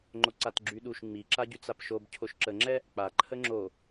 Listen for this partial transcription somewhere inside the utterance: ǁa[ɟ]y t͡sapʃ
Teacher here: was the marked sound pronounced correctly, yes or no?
yes